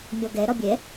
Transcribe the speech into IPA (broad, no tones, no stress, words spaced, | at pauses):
mʲɔɡɛ ɾɒbʲɛ